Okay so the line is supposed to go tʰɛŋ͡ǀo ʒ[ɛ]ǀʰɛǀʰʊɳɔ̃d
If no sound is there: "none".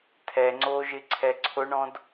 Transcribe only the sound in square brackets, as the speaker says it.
ɪ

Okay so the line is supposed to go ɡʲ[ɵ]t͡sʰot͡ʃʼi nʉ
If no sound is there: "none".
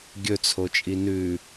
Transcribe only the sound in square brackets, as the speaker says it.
ɵ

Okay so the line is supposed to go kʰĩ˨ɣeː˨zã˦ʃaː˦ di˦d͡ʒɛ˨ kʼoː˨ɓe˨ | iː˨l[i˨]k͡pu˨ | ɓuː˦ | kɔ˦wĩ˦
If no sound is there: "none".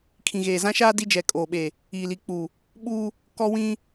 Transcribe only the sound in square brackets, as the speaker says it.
i˨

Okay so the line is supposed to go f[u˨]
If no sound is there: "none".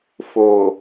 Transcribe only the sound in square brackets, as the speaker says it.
o˨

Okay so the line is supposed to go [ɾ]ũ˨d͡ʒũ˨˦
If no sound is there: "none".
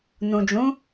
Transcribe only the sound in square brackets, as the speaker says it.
n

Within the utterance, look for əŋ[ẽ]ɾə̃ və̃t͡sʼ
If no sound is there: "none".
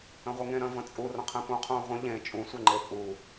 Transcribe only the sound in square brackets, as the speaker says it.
ẽ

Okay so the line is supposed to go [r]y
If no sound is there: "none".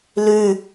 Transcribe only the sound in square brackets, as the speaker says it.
l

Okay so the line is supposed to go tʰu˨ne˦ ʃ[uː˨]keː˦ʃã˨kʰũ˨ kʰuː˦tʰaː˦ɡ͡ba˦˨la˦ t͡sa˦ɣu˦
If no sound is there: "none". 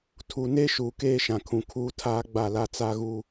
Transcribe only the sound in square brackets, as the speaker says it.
uː˨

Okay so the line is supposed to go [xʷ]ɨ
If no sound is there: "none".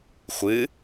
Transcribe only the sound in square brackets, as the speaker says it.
xʷ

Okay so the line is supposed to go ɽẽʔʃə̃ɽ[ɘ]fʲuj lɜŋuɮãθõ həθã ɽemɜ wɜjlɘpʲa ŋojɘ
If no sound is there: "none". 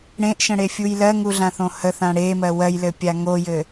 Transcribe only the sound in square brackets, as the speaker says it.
e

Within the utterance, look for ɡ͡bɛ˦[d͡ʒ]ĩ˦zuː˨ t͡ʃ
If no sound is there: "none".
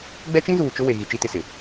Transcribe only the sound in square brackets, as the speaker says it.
t͡ʃ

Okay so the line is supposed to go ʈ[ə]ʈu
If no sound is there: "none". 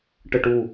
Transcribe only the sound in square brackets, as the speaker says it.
ə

